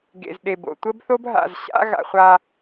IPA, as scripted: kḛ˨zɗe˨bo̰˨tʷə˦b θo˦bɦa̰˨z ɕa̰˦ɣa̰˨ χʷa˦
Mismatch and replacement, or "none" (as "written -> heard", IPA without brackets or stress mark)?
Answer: k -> ɡ